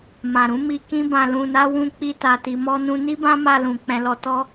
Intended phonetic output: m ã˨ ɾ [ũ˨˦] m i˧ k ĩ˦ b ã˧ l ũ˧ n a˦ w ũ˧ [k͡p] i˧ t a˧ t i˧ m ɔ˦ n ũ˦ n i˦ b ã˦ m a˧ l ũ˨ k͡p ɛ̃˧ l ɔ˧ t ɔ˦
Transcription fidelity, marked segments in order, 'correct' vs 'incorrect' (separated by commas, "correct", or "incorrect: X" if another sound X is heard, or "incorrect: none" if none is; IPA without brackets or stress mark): correct, correct